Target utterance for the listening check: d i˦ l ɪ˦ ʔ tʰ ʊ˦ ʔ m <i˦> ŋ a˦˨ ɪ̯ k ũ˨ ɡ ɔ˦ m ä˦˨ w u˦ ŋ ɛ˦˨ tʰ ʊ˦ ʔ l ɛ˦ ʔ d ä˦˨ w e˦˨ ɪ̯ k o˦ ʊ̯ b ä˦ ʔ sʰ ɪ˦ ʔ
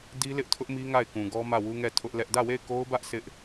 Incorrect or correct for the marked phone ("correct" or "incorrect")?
correct